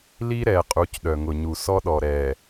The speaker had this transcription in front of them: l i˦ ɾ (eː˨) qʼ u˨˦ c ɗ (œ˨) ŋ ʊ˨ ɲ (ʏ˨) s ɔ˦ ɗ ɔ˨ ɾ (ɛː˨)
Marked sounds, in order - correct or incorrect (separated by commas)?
incorrect, correct, incorrect, correct